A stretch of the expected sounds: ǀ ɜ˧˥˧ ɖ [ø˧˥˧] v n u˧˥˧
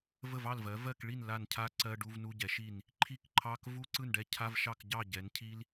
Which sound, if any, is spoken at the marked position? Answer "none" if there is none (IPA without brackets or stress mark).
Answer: u˧˥˧